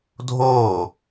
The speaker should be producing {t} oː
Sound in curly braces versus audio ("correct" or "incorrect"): incorrect